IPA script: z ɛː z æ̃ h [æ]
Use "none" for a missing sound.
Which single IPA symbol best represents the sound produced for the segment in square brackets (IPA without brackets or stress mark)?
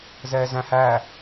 æ